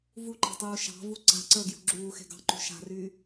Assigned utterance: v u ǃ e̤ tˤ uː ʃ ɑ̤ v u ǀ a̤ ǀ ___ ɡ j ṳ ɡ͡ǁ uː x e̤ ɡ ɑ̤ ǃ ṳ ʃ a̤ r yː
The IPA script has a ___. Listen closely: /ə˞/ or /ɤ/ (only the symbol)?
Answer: ə˞